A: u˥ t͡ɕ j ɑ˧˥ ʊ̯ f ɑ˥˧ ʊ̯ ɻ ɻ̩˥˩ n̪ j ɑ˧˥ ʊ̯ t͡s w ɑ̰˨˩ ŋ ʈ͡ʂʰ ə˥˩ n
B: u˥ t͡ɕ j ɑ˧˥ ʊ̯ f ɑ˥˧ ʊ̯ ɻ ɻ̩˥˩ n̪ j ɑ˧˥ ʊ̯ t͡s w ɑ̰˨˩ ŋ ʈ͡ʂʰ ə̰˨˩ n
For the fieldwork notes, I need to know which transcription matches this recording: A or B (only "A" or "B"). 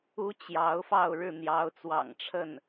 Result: A